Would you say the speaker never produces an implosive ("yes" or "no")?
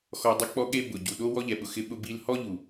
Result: no